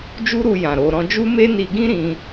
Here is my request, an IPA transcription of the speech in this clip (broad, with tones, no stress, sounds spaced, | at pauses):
d͡ʒ u˦ ɾ u˧ j ã˨ ɾ o˧ ɾ ɔ̃˧ d͡ʒ u˦ m e˦ n i˧ ɡ ĩ˦ ɾ ĩ˧